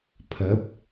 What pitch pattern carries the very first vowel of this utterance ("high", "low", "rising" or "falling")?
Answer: rising